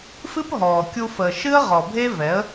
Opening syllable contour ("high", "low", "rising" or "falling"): high